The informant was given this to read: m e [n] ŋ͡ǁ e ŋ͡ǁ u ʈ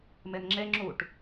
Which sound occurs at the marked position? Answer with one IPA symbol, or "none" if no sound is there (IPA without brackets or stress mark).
n